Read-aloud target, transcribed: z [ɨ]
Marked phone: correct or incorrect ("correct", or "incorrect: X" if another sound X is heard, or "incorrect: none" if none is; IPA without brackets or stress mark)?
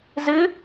correct